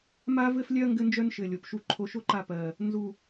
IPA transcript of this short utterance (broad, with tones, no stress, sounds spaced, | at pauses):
m a˥ v ɘ˥ f lʲ œ˥ ɐ̯ ŋ ɡ ɘ˥ n d͡ʒ œ˥ n ʃ ɘ˨˩ lʲ o˨˩ p ʃ u˦˨ ǃʰ o˦˨ ʃ o˥ ǃ a˦˨ p ɜ˨˩ | n z u˨˩